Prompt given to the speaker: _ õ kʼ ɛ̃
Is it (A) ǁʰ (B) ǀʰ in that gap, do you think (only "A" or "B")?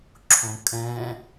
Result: A